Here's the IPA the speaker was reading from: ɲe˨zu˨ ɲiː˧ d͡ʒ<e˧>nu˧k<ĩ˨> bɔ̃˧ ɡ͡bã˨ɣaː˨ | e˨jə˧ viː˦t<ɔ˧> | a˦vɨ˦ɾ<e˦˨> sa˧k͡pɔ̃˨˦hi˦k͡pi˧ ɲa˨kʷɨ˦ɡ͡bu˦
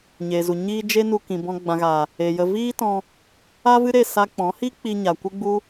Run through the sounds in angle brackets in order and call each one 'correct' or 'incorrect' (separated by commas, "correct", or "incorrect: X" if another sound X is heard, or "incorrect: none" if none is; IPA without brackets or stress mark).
incorrect: e˦, correct, incorrect: ɔ̃˧, correct